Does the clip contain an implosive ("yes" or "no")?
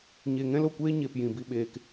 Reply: yes